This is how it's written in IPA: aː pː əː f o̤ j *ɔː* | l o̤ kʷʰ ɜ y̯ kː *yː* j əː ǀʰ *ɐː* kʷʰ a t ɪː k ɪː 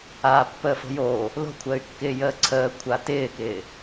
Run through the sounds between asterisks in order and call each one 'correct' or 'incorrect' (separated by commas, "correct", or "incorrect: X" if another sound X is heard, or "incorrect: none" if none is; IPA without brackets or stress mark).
incorrect: oː, incorrect: ɪː, incorrect: əː